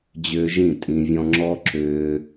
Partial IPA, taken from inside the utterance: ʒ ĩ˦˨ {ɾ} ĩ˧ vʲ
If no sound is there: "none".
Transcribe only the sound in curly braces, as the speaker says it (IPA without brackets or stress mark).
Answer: tʼ